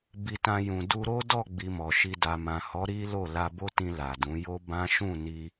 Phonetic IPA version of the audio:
b i˧ t ã˧ j ũ˨ d u˧ ɾ o˦ d ɔ˦˨ ɡ͡b i˧ m ɔ˨ ʃ i˧ d a˨ m ã˨ h ɔ˨˦ ɾ i˦ l o˦˨ l a˧ b o˦ t ĩ˧ l a˨ d ũ˨˦ j o˦ b ã˦ ʃ ũ˦˨ n i˧

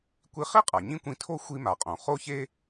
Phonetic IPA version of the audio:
kʷ i˧ χ i˥ qʼ a˩ ɲ ĩ˥ kʷ ĩ˧ tʰ o˥ xʷ i˧ m a˩ qʼ õ˩ χ o˧ ç e˧

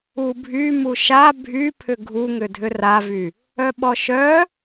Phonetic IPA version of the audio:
u bʱ y m u ʃ a bʱ y pʰ ʏ ɡʱ u ŋ ʏ dʱ ʏ r a v y | œ ɓ ɔ ʃ œ

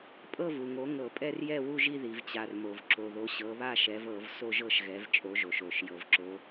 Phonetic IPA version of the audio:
pʼ ɤ˥˧ v u˩ ŋ o˨˦ ŋ ɤ˧˩˧ pʼ ɛ˥˧ r j ɛ˥˧ w u˥˧ ʒ i˥˧ ð i˩ v t͡ɕ a˩ r m o˩ v ǁ o˩ ð o˨˦ ɕ ɤ˨˦ β a˥˧ ʃ ɛ˨˦ v ɤ˧˩˧ v s o˥˧ ʒ ɤ˥˧ ʃ ɣ ɛ˨˦ v t͡ʃʼ o˨˦ ʒ o˩ ʃ o˧˩˧ ʃ j ɤ˩ v ǁ o˨˦

